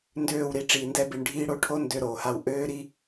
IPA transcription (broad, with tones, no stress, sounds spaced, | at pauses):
n d øː˦˨ w ɾ i˧ ʈ͡ʂ iː˨ n d ɛ˧ b i˨ ɳ ɖʱ iː˧ ɽ o˧ ʈʰ o˦ n d ø˧ ɾ oː˨ h a˧ w ʔ øː˦ ɾ i˦